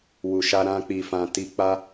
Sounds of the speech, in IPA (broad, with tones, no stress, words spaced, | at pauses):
wu˨ʃa˧ ɾã˧k͡pi˨fã˨ ti˧k͡pa˦